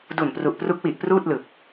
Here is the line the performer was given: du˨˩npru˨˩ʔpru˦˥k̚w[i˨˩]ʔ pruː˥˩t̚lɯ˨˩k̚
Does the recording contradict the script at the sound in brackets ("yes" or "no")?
no